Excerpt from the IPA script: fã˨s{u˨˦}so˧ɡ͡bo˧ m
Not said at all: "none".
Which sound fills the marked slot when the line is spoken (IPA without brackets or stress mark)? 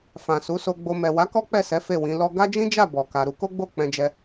u˨˦